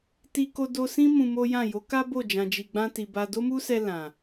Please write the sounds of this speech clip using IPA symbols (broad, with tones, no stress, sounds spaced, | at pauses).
t i˧ k o˧ d o˧ s ĩ˦ m ũ˧ m o˦ j ã˦˨ j o˨˦ k a˦ b o˦˨ d͡ʒ ã˨ d͡ʒ i˨ ɡ͡b ã˧ t i˨ b a˧ d o˦ m u˦ s ɛ˧ l ã˨